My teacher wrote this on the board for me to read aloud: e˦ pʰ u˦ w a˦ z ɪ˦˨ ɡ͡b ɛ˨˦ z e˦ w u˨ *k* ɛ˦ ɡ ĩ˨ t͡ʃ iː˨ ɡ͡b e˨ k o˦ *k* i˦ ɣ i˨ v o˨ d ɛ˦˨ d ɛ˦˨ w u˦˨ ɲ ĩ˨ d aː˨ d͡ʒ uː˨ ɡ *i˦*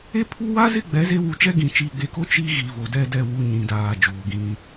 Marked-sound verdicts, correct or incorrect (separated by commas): incorrect, incorrect, incorrect